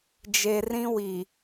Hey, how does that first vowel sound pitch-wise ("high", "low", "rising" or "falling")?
low